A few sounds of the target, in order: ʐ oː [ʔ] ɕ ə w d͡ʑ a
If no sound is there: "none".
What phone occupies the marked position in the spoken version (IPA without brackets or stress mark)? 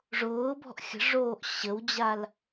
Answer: ʔ